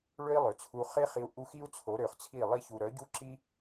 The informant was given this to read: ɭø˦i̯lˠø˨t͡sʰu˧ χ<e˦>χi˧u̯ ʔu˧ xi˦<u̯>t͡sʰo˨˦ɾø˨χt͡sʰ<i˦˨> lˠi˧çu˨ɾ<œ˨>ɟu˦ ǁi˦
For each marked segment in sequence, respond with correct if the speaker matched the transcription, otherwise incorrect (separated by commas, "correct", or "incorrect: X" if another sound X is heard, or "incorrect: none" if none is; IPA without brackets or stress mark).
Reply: correct, correct, correct, incorrect: œ˨˦